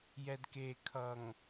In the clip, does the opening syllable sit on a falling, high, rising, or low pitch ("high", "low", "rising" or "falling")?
low